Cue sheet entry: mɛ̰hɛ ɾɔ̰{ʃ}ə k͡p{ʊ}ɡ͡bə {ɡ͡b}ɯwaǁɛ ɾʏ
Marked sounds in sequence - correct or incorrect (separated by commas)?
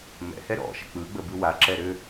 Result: correct, incorrect, incorrect